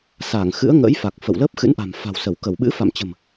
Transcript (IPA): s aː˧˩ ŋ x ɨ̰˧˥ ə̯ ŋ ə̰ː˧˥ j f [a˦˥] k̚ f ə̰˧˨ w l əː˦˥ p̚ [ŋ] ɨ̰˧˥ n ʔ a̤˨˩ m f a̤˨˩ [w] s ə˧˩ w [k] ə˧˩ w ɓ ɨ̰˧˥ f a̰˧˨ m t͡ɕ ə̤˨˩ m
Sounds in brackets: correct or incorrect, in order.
incorrect: a˨˩, incorrect: x, correct, correct

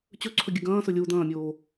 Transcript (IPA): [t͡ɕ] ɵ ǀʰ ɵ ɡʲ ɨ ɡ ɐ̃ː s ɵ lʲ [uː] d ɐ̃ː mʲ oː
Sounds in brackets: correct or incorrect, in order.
correct, incorrect: u

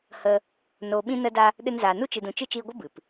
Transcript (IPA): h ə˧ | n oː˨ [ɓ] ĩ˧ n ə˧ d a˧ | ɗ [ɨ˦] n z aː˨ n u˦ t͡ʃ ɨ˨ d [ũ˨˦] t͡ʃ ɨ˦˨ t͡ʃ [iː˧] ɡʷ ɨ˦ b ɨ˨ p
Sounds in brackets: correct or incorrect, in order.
correct, incorrect: ɨ˧, incorrect: ũ˨, correct

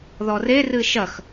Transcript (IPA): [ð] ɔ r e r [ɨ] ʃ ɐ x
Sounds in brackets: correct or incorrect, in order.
correct, correct

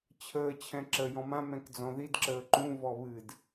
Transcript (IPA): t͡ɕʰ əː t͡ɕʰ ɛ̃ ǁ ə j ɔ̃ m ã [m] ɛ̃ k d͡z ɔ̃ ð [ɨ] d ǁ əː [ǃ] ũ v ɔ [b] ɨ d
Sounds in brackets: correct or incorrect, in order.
correct, incorrect: i, correct, incorrect: β

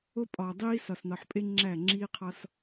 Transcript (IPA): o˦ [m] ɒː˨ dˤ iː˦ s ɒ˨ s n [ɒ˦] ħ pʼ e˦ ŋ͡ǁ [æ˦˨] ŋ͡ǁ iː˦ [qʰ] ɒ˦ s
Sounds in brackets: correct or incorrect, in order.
incorrect: pʼ, incorrect: ɒ˨, correct, correct

